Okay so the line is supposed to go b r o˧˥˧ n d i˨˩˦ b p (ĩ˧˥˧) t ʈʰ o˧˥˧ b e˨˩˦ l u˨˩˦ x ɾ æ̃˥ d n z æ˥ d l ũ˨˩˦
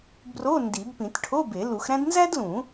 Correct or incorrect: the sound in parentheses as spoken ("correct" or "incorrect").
incorrect